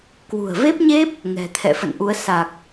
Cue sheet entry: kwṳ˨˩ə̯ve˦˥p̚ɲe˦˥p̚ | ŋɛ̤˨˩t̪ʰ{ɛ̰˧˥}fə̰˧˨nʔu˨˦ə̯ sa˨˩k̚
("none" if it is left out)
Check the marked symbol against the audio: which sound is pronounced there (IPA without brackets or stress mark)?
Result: ɛ̰˧˨